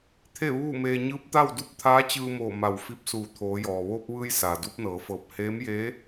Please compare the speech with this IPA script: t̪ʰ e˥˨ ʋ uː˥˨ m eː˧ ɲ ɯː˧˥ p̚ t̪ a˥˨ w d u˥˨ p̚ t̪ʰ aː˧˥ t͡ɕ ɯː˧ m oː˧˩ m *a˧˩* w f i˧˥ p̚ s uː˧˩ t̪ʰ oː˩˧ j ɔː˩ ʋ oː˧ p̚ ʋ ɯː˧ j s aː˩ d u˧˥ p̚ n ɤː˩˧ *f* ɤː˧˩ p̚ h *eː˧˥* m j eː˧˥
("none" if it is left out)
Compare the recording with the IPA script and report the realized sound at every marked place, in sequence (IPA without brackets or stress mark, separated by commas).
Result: a˧˩, f, eː˧˥